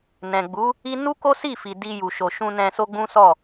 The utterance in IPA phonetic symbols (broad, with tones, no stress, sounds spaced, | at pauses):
n ɛ̃˨ ɡ͡b u˨˦ | i˦ n u˦ k o˦ s i˦˨ f i˨ d i˧ j u˨ ʃ o˨ ʃ ũ˧ n ɛ̃˧ s o˦ ɡ͡b ũ˦ s ɔ˦˨